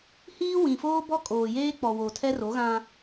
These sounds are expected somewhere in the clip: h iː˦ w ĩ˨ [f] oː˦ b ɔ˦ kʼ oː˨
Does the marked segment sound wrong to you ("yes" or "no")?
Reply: no